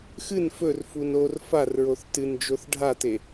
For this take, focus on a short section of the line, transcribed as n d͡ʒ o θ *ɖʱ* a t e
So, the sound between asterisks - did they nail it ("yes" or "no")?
yes